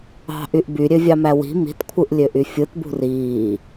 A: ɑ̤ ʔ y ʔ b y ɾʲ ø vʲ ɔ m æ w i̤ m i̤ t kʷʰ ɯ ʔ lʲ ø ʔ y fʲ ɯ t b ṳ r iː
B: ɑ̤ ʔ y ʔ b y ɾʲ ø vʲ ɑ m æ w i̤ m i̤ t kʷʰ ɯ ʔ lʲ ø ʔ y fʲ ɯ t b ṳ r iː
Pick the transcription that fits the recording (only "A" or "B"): B